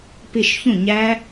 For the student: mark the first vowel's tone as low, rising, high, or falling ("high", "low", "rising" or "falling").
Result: falling